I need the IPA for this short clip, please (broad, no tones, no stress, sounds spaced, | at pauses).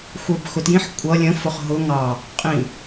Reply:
xʷ ə˞ b x ʊ t j ĩ ħ kʷʼ ʌ lʲ ə̃ f ʊ χ ɦ ʊ ŋ ɑ | qʼ ĩ